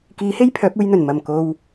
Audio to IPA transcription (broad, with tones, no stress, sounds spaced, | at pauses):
k iː˨˥ h e˥ j pʰ œː˨˥ p̚ uː˧ j n̪ ɵ˨˩ n m ɐ˨˩ m k o˨ w